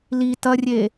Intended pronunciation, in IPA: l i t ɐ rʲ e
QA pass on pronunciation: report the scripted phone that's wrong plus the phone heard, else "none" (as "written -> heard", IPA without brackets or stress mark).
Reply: none